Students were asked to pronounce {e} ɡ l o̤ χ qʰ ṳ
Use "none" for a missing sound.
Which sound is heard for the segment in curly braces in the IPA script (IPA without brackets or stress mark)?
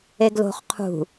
e